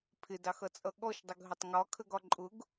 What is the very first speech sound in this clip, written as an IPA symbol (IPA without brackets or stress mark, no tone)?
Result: pʰ